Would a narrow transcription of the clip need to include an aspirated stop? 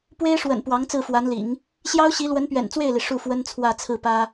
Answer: yes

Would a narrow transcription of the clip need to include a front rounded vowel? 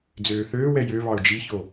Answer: yes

